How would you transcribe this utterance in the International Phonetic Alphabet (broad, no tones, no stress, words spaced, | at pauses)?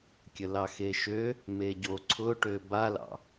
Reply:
kʲəlɑxeʃø | meɟo ǀʰʊʈø balɑ̰